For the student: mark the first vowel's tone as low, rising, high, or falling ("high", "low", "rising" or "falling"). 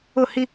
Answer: falling